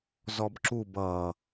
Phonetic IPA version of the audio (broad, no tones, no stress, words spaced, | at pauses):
zɔbǁub ʌ